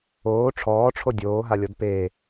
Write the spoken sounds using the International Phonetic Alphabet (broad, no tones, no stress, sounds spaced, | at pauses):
oː ʈ͡ʂʰ ɔː ʈ͡ʂʰ o dʲ oː ɦ a lʲ ɔ d p e